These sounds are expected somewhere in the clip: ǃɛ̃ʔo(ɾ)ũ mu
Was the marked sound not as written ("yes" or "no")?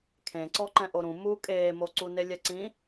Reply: no